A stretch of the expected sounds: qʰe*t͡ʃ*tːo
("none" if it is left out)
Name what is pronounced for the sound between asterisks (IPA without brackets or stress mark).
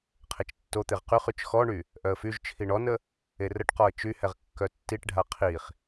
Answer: t͡ʃ